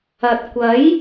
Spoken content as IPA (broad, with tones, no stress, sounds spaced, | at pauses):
ɐ˨ t̚ kʷ ɐ˨˥ j